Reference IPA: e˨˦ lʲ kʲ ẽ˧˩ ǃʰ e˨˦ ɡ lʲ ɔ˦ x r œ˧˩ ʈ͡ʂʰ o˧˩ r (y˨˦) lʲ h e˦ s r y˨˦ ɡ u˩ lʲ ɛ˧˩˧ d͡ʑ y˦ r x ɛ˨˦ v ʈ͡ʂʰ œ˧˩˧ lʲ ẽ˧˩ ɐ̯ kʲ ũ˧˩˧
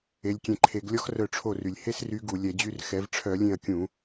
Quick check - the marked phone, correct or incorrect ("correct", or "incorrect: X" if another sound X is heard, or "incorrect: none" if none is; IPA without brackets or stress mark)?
incorrect: y˩